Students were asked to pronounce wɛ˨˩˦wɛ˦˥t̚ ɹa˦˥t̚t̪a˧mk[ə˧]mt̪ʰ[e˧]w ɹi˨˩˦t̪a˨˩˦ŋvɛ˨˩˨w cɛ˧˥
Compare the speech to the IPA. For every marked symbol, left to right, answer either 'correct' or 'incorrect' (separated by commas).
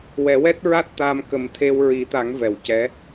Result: incorrect, correct